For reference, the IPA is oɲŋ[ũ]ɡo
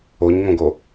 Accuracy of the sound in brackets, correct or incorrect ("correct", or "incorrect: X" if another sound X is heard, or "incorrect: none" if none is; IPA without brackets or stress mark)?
incorrect: õ